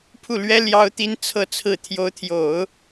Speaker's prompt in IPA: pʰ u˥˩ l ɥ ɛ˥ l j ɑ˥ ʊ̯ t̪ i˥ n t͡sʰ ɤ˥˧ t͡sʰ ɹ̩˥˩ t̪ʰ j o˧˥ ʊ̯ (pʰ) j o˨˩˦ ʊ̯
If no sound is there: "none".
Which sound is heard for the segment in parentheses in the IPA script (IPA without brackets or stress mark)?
t̪ʰ